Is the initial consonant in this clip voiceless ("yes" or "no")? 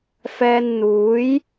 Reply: yes